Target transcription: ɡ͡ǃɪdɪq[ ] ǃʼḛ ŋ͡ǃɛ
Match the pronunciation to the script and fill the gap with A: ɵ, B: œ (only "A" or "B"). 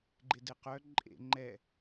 B